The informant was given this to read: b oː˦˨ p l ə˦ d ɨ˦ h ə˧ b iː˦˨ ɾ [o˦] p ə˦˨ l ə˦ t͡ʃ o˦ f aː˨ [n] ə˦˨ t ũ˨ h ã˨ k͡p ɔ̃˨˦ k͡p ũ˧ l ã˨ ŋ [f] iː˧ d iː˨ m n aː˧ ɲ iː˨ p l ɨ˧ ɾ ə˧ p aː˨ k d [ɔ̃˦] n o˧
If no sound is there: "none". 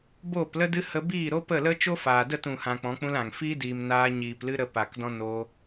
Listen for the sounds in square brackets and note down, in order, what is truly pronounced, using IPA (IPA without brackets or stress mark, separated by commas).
o˦, d, f, ɔ̃˦